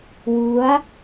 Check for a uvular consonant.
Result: absent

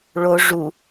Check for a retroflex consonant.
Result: present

